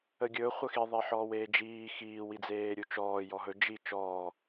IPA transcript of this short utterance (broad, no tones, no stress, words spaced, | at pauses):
əɡʲɵ χʷəxi ðˤeħɔːweːd͡ʒiː xiː wid͡zeːɾʲut͡ʃɔː jɔɦɵ d͡ʒi t͡ʃɔː